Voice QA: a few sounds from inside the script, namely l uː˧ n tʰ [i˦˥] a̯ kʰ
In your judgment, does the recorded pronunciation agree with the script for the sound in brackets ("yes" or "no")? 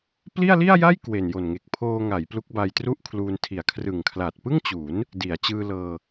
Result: no